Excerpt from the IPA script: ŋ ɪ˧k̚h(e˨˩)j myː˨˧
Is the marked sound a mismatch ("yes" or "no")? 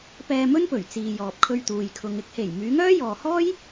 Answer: no